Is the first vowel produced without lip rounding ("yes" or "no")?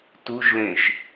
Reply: no